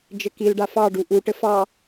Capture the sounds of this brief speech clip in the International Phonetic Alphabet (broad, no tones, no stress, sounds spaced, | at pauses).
d͡ʒ ɘ k i l ɖ a f ɑ ɖ u ʔ u ʈ ɘ f ɑ